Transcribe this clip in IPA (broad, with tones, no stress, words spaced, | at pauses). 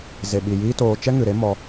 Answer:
ze˨ɓi˨jiː˦toː˧ t͡ʃɛ˦ŋɨ˨ɾe˦mɔ˧